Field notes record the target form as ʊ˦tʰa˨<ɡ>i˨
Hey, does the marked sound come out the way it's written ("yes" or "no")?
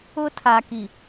no